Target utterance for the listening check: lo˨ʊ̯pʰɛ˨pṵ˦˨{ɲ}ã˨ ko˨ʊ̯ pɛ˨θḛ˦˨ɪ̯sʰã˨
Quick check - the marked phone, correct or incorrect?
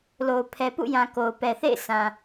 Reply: incorrect